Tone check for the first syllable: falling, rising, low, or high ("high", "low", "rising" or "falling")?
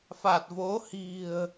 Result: low